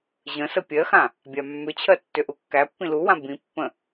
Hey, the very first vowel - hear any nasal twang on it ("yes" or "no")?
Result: yes